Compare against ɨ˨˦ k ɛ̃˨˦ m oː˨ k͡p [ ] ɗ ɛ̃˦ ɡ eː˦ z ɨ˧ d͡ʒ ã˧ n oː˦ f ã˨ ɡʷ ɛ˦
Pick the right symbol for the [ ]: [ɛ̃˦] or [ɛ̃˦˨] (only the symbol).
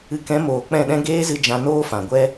ɛ̃˦˨